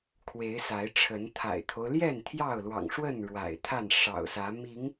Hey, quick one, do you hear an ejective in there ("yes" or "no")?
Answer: no